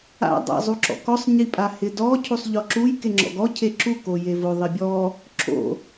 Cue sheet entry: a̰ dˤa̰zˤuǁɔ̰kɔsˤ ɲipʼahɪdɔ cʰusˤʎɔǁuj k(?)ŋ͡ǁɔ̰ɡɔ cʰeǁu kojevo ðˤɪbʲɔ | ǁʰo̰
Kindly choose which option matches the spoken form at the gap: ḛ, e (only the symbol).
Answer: e